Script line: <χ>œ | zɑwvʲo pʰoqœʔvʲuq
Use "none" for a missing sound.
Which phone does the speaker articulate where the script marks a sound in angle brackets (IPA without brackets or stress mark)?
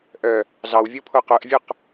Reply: ʔ